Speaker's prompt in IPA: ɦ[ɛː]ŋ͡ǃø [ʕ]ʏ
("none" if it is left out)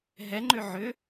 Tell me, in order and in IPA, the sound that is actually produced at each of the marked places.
ɛ, ʕ

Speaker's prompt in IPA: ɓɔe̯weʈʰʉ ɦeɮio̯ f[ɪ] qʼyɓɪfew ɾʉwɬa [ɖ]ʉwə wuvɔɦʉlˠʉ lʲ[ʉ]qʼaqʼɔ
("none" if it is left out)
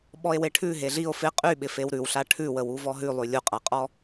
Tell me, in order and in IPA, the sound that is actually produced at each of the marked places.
ɪ, ʈʰ, u

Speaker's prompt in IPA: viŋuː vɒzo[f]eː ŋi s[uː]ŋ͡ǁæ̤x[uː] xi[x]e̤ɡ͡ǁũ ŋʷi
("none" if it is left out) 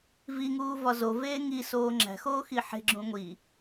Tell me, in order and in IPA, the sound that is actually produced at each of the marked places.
v, oː, oː, ħ

